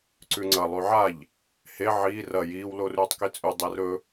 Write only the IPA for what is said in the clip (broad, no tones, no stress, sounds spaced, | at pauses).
ǀ ʉ ŋ͡ǀ ɐ lˠ ʉ ʕ a ʎ | h e ʕ iː r ɐ j iː w l o r ʉː tˤ k i t͡sʼ ʉ dˤ e r ɵ